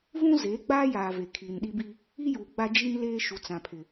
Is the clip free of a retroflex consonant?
yes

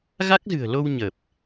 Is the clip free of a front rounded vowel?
yes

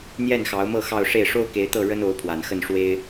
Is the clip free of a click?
yes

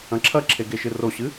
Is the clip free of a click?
no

